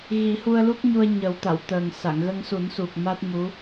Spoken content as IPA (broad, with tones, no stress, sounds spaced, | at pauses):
ɣ i˨˩˦ h u˧ ə̯ l u˦˥ k̚ ɲ u˧ ə̯ ɲ ə˨˩˦ w t̪ a˨˩˨ w t̪ əː˨˩ ŋ s a˨˩˨ ŋ ɣ ə˧ ŋ s u˨˩˦ n s u˨˩ k̚ m a˦˥ t̚ m u˧˥